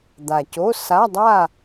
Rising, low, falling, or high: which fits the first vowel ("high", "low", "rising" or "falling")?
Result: low